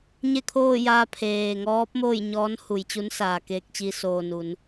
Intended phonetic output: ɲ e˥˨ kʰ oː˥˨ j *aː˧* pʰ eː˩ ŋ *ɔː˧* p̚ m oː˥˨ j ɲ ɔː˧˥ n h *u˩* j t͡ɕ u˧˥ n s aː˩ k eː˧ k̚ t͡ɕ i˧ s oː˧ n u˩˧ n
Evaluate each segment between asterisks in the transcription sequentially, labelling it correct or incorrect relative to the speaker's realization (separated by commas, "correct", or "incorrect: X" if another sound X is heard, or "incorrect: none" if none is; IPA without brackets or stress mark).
correct, incorrect: ɔː˧˥, correct